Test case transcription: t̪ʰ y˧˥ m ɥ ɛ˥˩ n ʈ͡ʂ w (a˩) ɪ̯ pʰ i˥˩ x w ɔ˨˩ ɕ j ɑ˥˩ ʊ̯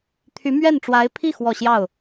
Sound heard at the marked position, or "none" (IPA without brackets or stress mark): a˧˥